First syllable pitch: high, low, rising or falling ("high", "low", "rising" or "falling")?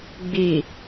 low